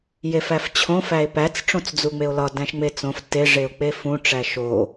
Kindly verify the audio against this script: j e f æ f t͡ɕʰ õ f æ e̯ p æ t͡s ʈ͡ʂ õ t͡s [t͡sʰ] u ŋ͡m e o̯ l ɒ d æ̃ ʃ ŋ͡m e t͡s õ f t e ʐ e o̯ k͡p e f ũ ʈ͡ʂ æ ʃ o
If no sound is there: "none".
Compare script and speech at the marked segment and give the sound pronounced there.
d͡z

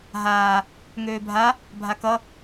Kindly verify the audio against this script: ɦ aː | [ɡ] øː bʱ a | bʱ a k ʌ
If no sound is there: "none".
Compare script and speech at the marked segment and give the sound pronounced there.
ŋ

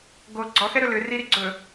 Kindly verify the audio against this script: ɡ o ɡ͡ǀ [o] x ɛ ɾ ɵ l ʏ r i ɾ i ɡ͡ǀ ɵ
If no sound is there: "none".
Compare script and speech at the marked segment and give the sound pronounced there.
ɔ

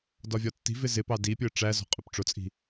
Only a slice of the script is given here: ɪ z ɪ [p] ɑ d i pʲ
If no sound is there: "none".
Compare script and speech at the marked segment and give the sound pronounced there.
p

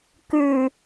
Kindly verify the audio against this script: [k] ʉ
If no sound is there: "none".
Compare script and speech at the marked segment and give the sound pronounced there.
k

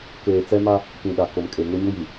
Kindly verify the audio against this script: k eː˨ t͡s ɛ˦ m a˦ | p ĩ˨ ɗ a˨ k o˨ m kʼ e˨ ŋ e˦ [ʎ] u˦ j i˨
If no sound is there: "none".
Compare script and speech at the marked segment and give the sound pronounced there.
ɲ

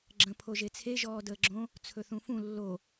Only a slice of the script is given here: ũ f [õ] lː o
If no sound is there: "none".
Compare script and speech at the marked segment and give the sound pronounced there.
ũ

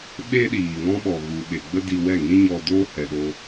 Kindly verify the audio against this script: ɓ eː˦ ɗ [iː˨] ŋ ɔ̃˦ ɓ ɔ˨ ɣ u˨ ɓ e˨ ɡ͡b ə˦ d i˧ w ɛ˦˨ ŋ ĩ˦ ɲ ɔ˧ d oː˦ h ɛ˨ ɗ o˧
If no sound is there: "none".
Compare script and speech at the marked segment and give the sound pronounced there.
iː˨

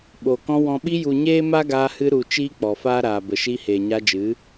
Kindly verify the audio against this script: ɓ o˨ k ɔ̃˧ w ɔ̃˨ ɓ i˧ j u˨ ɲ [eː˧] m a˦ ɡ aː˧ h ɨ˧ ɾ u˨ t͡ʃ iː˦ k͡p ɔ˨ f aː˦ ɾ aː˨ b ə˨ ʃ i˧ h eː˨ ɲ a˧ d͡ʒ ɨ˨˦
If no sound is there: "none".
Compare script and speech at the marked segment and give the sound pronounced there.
eː˦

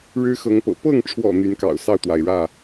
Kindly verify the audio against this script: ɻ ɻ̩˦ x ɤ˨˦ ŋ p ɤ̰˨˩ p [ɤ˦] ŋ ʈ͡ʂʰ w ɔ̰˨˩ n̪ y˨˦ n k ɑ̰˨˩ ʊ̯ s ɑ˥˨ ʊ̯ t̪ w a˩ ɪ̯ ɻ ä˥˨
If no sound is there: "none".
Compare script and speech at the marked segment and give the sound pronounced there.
ɤ˥˨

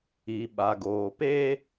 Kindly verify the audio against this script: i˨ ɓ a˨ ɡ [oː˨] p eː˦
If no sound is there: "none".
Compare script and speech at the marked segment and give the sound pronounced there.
oː˨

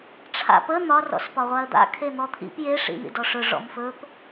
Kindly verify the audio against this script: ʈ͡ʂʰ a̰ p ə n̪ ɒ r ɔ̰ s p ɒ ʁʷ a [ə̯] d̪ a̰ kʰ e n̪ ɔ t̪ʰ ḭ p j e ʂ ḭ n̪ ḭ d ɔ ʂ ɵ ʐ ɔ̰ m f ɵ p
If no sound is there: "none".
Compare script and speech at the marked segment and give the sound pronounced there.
ə̯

